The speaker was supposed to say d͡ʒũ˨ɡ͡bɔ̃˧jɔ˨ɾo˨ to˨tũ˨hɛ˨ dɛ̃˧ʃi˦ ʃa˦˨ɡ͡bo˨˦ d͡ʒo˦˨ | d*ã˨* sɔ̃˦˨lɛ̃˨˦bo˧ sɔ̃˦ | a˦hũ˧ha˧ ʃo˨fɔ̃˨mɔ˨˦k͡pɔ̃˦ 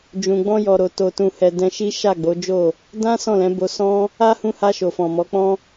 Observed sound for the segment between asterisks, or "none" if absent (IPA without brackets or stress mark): ã˦